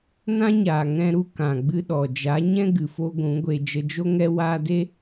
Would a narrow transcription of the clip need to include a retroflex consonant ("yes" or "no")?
no